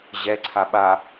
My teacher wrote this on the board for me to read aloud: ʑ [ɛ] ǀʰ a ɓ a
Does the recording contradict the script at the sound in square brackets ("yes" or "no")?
no